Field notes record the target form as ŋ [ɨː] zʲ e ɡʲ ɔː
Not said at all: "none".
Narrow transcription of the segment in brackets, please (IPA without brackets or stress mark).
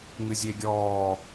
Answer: ɨ